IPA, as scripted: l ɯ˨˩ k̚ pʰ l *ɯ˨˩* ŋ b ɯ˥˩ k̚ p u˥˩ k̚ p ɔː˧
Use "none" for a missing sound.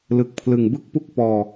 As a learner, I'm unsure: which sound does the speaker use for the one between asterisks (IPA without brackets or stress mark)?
ɯ˨˩